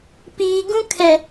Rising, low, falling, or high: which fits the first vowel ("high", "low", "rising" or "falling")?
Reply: low